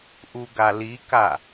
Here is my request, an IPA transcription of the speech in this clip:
ʔ u ɡ a l i k a

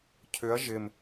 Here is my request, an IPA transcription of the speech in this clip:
cʰ ʏ ɐ̯ ʒ ɪ m

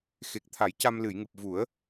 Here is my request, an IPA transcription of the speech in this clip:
x e˨˩ k̚ t̪ʰ a˨˩˦ j c a˧ m l ɨ˨˩˨ j ŋ ɨ˨˩ p̚ v u˨˩˦ ə̯

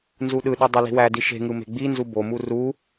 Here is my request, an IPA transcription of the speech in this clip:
n z u ɗ ɯ ɗ y dˤ i l i̤ w æ d i ʃ e̤ ŋ ɯ m e̤ ɡ͡b i n z u b o m u r u

